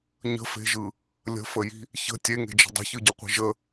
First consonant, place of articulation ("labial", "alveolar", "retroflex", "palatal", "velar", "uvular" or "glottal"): palatal